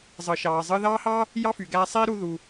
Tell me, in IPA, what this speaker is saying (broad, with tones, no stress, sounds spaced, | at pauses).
zˤ ɯ˩ ʃ ɑː˩ zˤ ɯː˧ ð ɑː˥ h ɑː˥ | j ɑ˥ f y˩ ɡ æː˧ sˤ iː˥ ɾ u˧ ð u˩